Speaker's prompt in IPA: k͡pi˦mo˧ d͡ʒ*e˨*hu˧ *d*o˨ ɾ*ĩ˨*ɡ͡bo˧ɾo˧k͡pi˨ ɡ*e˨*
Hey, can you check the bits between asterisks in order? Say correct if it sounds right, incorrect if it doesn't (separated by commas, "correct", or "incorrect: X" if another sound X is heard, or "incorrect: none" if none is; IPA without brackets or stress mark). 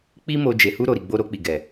correct, incorrect: ɾ, incorrect: i˨, incorrect: ɛ˨